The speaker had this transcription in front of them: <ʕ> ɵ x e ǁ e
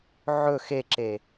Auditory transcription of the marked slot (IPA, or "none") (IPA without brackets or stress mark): ʕ